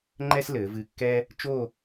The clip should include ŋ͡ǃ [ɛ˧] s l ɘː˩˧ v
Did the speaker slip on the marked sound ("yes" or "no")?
yes